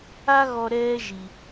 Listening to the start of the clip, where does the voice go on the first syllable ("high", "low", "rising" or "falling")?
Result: high